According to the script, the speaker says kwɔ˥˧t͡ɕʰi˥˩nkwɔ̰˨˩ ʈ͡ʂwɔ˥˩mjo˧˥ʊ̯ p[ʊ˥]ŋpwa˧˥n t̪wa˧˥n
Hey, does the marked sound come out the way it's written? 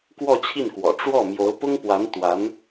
yes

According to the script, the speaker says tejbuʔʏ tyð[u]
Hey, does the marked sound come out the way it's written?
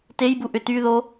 no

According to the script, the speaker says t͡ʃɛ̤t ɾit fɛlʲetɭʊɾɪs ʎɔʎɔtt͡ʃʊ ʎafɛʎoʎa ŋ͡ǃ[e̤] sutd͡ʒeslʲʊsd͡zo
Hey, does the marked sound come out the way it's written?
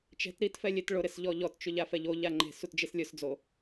yes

